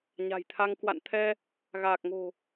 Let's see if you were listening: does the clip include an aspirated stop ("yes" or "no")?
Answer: yes